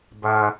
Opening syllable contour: low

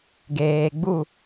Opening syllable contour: low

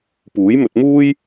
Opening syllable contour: rising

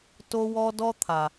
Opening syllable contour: high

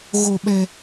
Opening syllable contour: low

